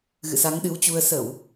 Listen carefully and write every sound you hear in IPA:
ɣ ɨ̰˧˨ s a˨˦ ŋ ɗ ɨ˨˦ w t͡ɕ u˧ ə̯ s ə˧˩˨ w

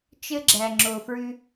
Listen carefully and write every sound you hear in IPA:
t͡ʃ ɘ˧ ɡ͡ǁ æ˨ ŋ͡ǁ o˨ f ɹ ʉ˧

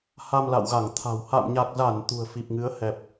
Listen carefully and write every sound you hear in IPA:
h a˧ m l a̰˧˨ w ɣ a˧˩ ŋ t̪ʰ a̤˨˩ w h a̰˧˨ m ɲ a˨˩ k̚ z a˧˩ n t̪ ṳ˨˩ ə̯ f i˨˩ p̚ ŋ ɨ˨˦ ə̯ h ɛ˨˩ p̚

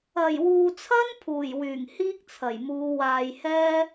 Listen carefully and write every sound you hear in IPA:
ɐ˨˩ j w uː˨ t͡sʰ ɐ˥ n pʰ uː˨˩ j w yː˨˩ ŋ h iː˥ k̚ t͡sʰ ɐ˨˩ j m uː˨˧ w aː˨ j h ɛː˥

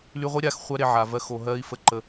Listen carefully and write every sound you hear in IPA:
l y˧ ʁʷ i˦ ɾʲ a˦˨ x χʷ æ˦ ɾ e˧ ʕ a˨ v ɜ˧ x o˨ ɦ ɜ˧ i̯ f ə˦ ǃ ə˧

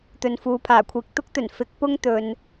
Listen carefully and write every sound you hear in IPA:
t̪ ɵ˨ n f uː˨ pʰ aː˨˩ kʷʰ iː˨ k̚ t̪ ʊ˥ k̚ t̪ ɵ˨˩ n f ɪ˨˥ k̚ p ʊ˥ ŋ t̪ ɵ˨ n

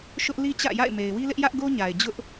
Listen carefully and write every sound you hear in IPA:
ʃ ʊ˦ ʔ l i˦ t͡ɕ ä̰˦˨ j a̰˦˨ ɪ̯ m e˨ ɪ̯ w i˦ l ɪ˦ ʔ j ä˦ ʔ ɡ o˦ ɲ a˨ ɪ̯ d͡ʑ ʊ˦ ʔ

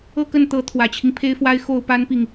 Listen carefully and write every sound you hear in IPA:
ɤ˥˧ k ə˥˩ n t̪ ɤ˧˥ t̪ʰ w ä˨˩ t͡ɕʰ i˦ ŋ pʰ e˥ ɪ̯ f w a˥ ɪ̯ x o˥˩ ʊ̯ p a˥ n p i˨ ŋ

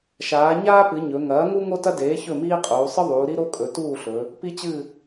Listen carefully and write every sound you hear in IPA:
ʃ aː˩˧ ɲ aː˥ p ɨ˩˧ ɲ ɵ˩˧ ŋ ɐː˩˥ ŋ u˥ ŋ o˥ t ɐ˥ d eː˩˥ ç ɵ˥˨ m iː˥ qʼ uː˩˧ sˤ ɨ˥ ðˤ uː˩˧ ɾ i˥ ɾ o˥ kʼ ɵ˩˧ t uː˥˨ ɬ ɵ˩˧ | p i˥ t͡ɕ ɨ˥˨

